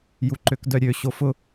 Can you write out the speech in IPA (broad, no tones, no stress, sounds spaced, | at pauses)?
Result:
j u ǃ ø k d œ ɾʲ ø ɕ o f ʊ